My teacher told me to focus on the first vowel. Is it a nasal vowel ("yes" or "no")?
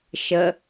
no